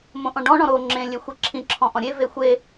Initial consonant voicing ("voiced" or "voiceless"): voiced